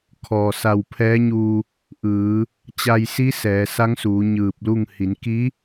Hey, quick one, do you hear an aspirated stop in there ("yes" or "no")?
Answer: yes